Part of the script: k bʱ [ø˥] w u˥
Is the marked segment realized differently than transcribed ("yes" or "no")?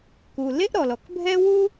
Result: yes